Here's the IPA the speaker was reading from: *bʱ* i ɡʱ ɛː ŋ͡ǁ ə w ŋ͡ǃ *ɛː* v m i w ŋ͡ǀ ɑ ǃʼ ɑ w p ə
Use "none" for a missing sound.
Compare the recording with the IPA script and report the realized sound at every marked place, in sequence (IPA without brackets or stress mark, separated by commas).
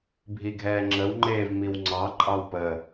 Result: bʱ, eː